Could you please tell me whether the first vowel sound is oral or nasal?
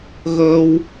oral